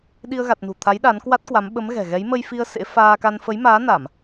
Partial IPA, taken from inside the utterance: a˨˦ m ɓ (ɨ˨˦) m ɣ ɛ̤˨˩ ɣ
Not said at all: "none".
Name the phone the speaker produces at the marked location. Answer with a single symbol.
ə˨˦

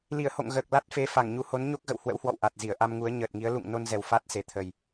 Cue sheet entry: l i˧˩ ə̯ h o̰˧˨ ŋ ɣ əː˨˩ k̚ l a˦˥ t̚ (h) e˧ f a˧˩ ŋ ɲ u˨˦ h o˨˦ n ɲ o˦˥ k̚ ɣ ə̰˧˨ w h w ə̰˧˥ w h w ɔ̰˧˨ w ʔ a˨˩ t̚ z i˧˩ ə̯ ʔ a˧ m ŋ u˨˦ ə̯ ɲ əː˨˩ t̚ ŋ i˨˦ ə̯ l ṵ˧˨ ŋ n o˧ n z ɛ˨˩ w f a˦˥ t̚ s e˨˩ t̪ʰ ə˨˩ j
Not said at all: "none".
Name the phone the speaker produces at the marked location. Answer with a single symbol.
f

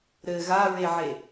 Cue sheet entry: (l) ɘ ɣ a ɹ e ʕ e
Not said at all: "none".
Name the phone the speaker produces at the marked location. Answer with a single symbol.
ɾ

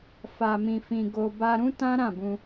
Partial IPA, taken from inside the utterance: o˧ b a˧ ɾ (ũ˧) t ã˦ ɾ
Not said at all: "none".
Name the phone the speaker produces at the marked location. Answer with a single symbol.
ũ˦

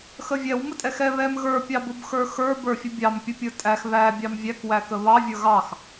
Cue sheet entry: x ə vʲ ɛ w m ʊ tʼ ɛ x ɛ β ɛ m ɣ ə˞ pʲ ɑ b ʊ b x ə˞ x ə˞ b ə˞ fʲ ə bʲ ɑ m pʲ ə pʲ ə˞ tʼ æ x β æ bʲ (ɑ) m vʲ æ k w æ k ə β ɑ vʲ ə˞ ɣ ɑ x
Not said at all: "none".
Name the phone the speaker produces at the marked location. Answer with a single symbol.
ɑ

